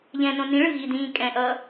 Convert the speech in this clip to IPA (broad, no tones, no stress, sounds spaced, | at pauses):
ʎ ɛ̃ n õ n ĩ ɭ ɯ ɣ i d ĩː kʼ ɛ̃ ʔ ʌː